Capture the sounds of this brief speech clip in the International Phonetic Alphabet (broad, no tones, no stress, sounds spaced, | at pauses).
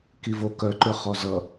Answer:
k i v o k œ ǃ ʏ χ ɔ z ʌ